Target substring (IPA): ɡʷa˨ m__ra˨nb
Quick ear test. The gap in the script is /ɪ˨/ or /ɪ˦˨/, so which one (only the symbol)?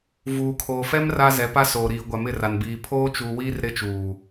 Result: ɪ˦˨